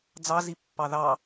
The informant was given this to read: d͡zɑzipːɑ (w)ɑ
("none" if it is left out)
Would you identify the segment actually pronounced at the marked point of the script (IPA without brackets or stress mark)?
ð